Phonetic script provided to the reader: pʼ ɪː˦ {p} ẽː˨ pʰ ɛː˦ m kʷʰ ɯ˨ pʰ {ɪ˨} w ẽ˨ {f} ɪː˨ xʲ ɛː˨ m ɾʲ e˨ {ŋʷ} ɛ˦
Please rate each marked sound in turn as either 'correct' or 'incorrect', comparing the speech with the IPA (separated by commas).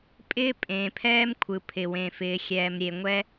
incorrect, correct, correct, correct